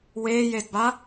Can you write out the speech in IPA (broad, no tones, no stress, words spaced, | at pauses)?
weːjedba